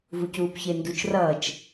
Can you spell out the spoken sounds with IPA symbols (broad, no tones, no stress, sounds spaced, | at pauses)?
v u c uː p ç e n d u t͡ʃ r ʌː t͡ʃ